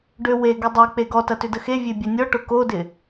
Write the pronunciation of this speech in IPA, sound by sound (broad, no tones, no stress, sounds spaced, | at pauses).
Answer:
ɖ ø w e ɡ ʏ dˤ e k͡p e ɡ ɔ t ɐ t ʏ d ə x e vʲ e bʲ ɐ nʲ ɔ ʈ ʊ k o d ɪ